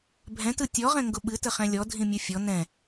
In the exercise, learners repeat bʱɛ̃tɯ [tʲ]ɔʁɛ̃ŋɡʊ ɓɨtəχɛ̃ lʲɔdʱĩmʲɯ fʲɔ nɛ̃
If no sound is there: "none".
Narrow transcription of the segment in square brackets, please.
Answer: tʲ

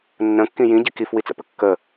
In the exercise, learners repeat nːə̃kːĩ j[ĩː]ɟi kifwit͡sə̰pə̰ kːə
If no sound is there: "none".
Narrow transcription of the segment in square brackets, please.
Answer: ĩ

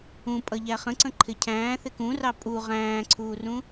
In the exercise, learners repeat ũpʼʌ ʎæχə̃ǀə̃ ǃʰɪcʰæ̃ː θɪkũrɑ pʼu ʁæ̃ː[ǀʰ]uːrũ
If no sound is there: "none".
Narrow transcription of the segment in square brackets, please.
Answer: ǀʰ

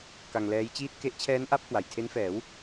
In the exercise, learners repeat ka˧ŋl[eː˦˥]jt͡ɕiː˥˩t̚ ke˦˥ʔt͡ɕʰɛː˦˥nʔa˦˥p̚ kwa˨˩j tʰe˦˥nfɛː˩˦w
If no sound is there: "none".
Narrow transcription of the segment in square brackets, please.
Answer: ɛː˦˥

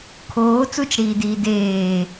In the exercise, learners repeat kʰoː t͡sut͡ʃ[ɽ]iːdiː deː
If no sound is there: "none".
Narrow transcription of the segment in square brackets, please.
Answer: ɽ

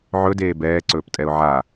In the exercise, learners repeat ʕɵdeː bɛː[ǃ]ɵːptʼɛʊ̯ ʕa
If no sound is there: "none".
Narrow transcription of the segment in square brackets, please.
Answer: ǀ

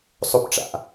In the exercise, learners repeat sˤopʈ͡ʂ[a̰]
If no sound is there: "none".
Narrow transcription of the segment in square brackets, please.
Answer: a̰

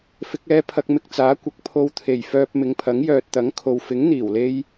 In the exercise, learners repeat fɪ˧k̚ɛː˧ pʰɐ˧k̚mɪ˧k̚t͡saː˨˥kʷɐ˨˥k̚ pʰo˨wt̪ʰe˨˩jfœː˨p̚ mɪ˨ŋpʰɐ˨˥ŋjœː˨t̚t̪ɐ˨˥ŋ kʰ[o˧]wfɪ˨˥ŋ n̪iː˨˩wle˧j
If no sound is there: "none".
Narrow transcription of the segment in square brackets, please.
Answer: o˨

